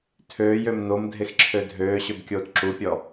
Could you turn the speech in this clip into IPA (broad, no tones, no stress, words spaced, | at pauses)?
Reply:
tʰøːjøm nomdʱexǁʰø dʱøːɕøbkʲoːt ǁupʲɔ